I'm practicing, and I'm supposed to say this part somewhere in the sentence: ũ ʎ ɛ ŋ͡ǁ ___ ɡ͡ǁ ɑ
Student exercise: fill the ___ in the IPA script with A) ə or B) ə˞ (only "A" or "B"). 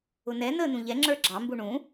B